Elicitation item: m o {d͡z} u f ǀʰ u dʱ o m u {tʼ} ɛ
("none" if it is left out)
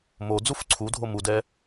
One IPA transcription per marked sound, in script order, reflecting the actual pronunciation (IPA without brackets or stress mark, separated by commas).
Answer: d͡z, d